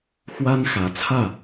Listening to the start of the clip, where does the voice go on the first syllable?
high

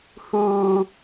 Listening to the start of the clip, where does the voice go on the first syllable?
high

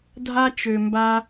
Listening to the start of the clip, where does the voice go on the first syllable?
high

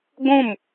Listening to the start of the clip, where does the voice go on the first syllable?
falling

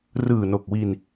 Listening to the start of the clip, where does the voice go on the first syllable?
low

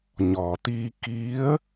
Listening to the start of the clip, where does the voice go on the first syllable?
low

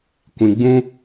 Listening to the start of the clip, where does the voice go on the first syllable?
low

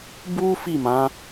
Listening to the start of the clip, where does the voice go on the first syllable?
high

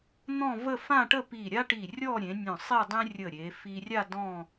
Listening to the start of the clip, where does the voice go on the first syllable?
falling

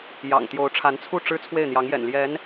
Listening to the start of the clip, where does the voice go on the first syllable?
low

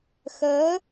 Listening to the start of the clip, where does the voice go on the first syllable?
rising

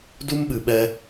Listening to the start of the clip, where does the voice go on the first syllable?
high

